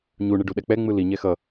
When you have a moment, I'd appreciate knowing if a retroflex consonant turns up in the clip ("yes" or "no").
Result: yes